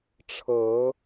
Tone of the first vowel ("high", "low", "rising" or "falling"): rising